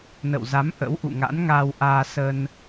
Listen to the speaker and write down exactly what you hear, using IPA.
n ə̰˧˨ w z a˨˦ m ʔ ə̰˧˥ w ʔ ṵ˧˨ ŋ a̰˧˥ n ŋ aː˧ w ʔ aː˧ s ə˧ n

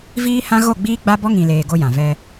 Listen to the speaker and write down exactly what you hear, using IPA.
v iː˦ h ã˦ ɣ o˦˨ ɡ͡b iː˦ ɡ͡b a˦ b ɔ˦ ŋ ĩ˨ l eː˨ ɡ o˦ j ã˨ v ɛ˦

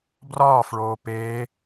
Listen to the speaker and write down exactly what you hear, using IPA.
b r ɒː f ɭ oː p eː

